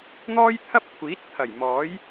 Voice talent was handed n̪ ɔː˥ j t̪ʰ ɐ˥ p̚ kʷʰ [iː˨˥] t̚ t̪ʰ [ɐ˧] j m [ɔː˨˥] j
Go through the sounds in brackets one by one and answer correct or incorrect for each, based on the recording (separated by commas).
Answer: correct, incorrect, correct